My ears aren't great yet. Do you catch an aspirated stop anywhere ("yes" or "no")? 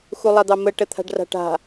yes